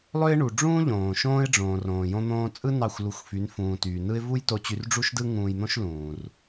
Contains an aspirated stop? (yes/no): no